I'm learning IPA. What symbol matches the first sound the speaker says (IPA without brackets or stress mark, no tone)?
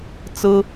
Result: t͡s